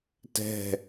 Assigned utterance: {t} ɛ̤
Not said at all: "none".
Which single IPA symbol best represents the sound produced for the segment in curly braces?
t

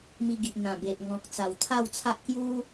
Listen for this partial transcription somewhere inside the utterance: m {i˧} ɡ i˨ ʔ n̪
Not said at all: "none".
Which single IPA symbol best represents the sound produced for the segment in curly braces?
i˧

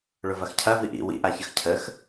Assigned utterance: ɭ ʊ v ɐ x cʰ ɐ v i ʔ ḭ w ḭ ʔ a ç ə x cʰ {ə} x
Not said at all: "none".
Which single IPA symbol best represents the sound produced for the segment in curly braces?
ə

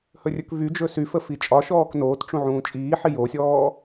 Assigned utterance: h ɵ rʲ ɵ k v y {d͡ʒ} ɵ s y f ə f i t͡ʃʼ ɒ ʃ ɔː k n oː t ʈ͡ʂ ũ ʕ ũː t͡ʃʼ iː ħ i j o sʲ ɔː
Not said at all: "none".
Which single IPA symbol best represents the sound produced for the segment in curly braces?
d͡ʒ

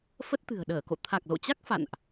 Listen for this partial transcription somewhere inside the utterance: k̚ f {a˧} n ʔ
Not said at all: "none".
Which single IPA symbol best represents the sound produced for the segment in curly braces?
a̰˧˨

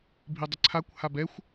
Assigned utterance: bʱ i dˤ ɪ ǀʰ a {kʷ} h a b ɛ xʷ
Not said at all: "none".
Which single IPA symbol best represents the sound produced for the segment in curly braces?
kʷ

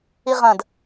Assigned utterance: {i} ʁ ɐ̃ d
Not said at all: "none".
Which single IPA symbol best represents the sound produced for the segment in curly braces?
i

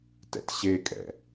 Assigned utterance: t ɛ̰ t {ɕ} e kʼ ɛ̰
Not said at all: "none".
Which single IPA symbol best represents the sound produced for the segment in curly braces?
ɕ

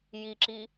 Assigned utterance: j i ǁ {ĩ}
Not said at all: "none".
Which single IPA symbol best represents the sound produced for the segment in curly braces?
i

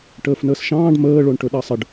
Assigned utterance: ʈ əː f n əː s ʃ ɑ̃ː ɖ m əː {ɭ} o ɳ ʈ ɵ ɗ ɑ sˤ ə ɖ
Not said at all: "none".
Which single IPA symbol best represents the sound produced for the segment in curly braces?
ɭ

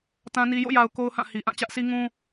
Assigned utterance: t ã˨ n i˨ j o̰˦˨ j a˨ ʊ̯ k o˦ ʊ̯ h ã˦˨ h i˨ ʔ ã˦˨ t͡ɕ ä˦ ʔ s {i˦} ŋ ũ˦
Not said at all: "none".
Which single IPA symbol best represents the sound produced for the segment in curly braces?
i˦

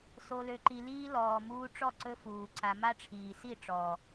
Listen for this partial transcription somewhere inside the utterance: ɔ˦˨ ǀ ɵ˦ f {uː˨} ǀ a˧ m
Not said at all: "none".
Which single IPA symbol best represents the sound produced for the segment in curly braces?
uː˨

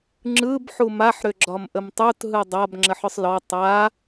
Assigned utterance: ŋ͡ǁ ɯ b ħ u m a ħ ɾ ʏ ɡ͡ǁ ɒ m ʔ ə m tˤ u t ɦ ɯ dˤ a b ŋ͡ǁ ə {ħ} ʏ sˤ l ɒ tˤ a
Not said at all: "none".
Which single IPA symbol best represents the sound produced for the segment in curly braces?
ħ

